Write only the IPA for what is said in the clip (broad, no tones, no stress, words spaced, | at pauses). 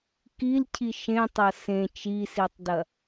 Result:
kilcʰi ʃẽtˤɐ sẽ t͡ʃisitˤdɐ